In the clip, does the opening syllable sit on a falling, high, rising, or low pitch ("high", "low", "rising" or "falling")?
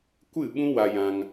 falling